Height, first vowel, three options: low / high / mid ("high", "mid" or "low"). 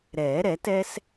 mid